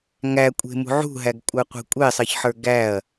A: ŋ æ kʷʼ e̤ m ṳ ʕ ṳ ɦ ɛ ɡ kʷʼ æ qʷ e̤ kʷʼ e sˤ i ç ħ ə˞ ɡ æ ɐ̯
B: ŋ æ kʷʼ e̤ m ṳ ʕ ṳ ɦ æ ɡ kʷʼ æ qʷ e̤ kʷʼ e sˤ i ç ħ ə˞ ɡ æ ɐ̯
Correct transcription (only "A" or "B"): B